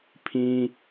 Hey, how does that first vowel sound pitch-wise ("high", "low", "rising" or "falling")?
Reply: high